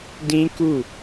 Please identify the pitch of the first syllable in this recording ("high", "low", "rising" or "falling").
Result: high